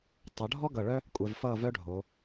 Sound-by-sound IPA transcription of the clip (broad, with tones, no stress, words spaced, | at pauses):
tˤʌ˩˧ ɖʱɔ˥ ɡʌ˧˩ɭœ˥ | kʷʼɛ˧vfʌː˥˧vœ˥ɖʱo˩˧